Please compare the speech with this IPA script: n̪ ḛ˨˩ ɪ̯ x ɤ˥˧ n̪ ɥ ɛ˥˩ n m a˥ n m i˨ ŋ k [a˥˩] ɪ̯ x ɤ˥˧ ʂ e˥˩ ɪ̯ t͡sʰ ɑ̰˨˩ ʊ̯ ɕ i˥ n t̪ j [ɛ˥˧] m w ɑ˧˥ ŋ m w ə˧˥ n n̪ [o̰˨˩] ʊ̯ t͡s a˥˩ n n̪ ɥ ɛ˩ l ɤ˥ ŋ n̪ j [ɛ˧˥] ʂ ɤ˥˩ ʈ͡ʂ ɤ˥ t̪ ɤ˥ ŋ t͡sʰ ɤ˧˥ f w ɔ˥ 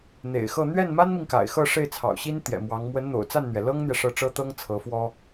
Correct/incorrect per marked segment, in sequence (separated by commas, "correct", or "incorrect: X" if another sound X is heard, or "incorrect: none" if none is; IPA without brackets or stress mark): incorrect: a̰˨˩, incorrect: ɛ̰˨˩, correct, incorrect: ɛ˨